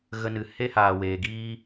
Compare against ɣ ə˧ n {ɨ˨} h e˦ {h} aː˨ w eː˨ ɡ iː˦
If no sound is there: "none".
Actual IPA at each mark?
ɨ˨, h

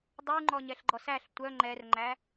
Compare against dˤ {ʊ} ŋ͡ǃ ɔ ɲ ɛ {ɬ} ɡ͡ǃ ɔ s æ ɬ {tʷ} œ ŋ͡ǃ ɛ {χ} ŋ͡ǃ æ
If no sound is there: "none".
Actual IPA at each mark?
u, ɬ, tʷ, r

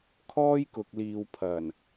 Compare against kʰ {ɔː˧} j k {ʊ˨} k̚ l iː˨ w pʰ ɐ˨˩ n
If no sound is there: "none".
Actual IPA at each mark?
ɔː˥, ʊ˨

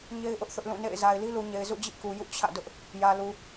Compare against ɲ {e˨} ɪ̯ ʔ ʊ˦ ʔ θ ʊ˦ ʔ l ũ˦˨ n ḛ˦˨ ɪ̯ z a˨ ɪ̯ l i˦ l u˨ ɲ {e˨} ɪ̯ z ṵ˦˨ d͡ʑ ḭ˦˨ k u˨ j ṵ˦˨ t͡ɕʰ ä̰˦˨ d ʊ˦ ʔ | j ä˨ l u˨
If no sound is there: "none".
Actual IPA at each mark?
e˦, e˨

